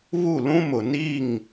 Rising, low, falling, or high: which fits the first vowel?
falling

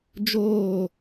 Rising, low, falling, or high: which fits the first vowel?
falling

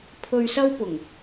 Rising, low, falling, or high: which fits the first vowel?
low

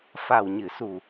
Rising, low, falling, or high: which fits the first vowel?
low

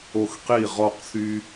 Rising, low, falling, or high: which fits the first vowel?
falling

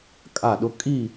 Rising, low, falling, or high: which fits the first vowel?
falling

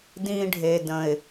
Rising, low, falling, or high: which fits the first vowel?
high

